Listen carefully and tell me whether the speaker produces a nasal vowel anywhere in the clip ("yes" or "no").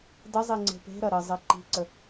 no